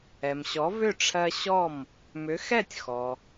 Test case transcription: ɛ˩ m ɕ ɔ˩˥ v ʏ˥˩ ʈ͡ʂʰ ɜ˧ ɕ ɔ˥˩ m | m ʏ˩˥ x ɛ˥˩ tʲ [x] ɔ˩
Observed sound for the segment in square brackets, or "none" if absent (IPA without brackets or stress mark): x